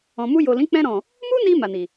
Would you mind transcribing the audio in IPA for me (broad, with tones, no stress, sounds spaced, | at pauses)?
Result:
ɔ̃˨ m u˧ j o˨ l ĩ˨˦ k͡p ɛ̃˧ ɾ ɔ̃˨ | m u˦ n i˧ m a˨ n i˨